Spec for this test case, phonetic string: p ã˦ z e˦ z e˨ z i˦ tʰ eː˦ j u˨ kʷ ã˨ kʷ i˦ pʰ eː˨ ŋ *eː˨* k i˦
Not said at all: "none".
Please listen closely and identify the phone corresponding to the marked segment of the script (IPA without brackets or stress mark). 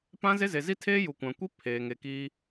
e˨